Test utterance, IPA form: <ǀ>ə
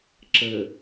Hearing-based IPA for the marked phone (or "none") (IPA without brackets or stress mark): ǁ